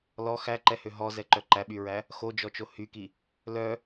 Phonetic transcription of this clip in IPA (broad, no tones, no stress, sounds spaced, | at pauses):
l ɔ x æ ǃ ɛ h ø ɦ ɔ z ɛ ǃ œ ǃ æ ɓ y ɹ æ | x o d͡ʒ ɔ t͡ʃ o h y k i | l œ